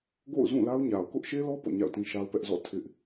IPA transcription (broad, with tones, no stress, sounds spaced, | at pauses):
ɡ o̰˦˨ ʊ̯ z ũ˦˨ l a˦ ʊ̯ ɲ a˨ ʊ̯ k ʊ˦ ʔ ʃ e˦ l ɔ˦ p ɔ̰˦˨ ɲ a̰˦˨ ʊ̯ t ĩ˦ ʃ a˦ ʊ̯ p ɛ˦ ʔ z ɔ̰˦˨ tʰ ɪ˦ ʔ